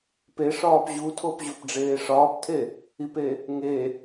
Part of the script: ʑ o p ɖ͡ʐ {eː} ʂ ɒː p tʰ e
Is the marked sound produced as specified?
yes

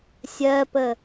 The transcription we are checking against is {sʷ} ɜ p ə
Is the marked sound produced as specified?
no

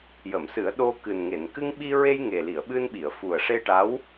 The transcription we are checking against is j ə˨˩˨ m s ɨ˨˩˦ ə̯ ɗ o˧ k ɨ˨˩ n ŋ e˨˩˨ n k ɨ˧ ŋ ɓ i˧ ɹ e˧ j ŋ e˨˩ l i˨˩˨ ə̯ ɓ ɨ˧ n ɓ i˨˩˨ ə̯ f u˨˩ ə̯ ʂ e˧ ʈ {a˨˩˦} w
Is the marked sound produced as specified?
no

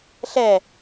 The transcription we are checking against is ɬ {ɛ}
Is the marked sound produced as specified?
yes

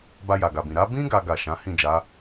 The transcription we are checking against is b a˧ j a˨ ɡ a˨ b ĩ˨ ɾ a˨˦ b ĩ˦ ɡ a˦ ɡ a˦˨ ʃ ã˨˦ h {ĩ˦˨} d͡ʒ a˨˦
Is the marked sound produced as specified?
yes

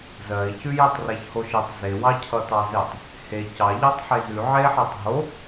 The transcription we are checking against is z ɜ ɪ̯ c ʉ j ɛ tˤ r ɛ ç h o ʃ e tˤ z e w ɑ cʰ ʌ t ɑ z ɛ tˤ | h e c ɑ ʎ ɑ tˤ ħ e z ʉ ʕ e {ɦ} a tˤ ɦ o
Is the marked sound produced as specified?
no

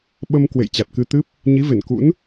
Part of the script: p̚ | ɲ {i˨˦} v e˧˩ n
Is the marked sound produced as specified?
yes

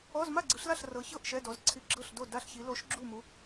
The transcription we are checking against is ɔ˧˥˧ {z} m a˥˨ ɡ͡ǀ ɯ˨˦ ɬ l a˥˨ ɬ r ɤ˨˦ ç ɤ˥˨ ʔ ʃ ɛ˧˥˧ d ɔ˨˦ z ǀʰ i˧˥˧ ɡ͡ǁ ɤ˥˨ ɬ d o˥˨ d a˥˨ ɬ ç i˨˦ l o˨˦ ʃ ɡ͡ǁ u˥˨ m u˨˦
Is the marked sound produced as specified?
yes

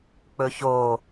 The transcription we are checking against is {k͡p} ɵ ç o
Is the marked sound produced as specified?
yes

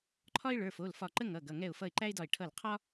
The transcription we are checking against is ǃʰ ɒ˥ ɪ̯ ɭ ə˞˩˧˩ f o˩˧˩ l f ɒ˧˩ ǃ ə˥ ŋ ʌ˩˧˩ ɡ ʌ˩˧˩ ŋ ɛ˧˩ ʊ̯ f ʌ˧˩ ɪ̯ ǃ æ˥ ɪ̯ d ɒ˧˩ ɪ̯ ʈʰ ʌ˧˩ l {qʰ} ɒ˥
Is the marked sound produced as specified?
yes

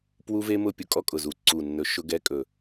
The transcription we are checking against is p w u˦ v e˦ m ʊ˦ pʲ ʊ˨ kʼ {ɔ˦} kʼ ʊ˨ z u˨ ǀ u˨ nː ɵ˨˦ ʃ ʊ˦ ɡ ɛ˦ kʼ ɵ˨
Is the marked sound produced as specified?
yes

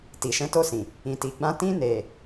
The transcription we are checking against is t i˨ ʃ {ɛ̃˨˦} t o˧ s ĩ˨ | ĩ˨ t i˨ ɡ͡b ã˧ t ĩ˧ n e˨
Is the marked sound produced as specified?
yes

